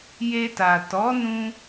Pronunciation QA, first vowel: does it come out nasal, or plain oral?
oral